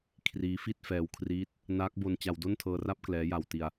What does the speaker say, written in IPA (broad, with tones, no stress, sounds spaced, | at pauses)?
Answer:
kʰ r iː˦˥ f i˥˩ t̚ f ɛː˧ w kʰ r iː˦˥ t̚ | n aː˦˥ k̚ b o˧ n t͡ɕ a˧ w d o˥˩ n tʰ ɤː˧ r a˥˩ p̚ k l ɛː˦˥ j a˧ w t i˧ a̯